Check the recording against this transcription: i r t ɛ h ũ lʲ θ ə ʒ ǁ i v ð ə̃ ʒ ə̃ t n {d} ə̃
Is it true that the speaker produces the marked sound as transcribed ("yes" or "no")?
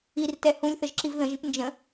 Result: no